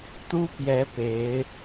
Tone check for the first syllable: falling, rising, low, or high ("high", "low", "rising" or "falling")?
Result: high